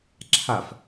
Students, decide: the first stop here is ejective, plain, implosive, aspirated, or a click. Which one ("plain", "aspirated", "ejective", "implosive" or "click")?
click